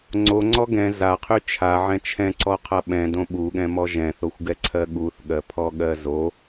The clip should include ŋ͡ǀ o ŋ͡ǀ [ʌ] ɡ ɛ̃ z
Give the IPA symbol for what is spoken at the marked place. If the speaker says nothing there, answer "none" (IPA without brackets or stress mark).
ɔ